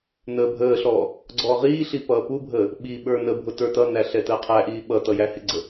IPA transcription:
nəːbʱəːɬɔː | ɡ͡ǀɔːʁiːɬi pʌːpubʱəː | ɓiɓə˞ nəbʱʊ tə˞tʌnæ ɬɛtəːqʰæʔiː ɓʌtʌ jæhɪɡ͡ǀə

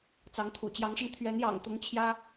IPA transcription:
t͡sɑ˨˦ŋt̪ʰṵ˨˩ t͡ɕjɑ˨˦ŋʂə˧n t̪ʰɥɛ˨˦njɑ̰˨˩ŋt̪ʊ˨˦ŋ t͡ɕʰjä˦

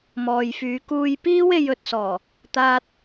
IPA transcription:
mɔː˨jfyː˨˧ kuː˧jpiː˥we˧j ɵ˨t̚sɔː˨˩ | t̪aː˧t̚

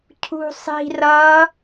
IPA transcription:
cʰṳsˤi̤ rʌ

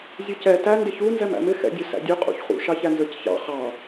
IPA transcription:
zʲʊcɛ tæ ndɪçu nzɛmæ̰mɪ xɛ̰dʲʊsæ̰dʲʊ qʼṵçχṵ ʃɑçænzə˞cçɑ̰ χɑ

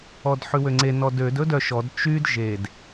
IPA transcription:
ɔdħʉwøŋ͡ǀe nɔdød ɵdœʃɔd t͡ʃyd ʒed

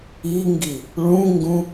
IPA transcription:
iŋɡi | ɭũŋɡũ

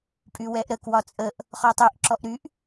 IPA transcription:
pʼywɛʔɾə kwɒt͡sʼəʔ | χɔtˤyʔ ǁɔʔɾyʔ

